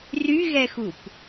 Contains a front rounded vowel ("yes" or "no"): yes